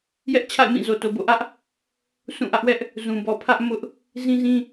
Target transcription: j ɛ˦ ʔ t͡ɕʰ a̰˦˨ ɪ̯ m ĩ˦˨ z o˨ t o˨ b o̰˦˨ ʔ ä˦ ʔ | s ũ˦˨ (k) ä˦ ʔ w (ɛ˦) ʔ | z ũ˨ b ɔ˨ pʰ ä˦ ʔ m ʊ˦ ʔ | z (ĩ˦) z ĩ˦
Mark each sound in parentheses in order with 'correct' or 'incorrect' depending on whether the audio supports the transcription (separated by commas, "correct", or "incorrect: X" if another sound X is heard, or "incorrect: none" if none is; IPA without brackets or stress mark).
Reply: incorrect: ʔ, correct, correct